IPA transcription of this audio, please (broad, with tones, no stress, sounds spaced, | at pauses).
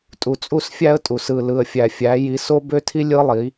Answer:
tʼ u˨ t͡sʼ u˦˨ s fʲ æ˦ ə̯ tʼ u˨ s ɯ˨ l ɯ˨ ə̯ fʲ æ˨ fʲ æ˨˦ j i˨˦ s o˦ b ø˦ tʰ i˦ lʲ ɯ˦ lˠ i˨˦